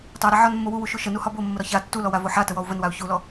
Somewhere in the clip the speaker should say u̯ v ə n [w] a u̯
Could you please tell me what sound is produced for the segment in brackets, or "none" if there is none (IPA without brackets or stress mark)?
w